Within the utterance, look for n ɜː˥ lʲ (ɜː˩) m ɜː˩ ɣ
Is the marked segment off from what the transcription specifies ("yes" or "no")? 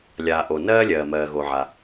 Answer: no